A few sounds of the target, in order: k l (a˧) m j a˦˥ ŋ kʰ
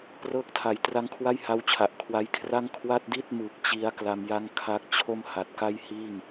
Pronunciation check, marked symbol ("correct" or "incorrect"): correct